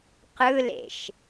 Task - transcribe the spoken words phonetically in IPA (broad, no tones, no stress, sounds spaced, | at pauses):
q ɯ l ḛ ʃ